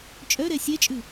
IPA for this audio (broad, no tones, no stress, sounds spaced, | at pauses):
t͡ʃʼ œ ɾ ɛ sʲ ɛ t͡ʃʼ ʉ